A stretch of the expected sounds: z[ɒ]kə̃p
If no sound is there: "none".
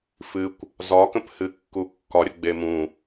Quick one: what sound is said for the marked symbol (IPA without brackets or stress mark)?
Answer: ɒ